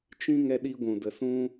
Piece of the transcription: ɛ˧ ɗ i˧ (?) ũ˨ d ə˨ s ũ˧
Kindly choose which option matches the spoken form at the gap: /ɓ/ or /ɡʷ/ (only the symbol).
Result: ɡʷ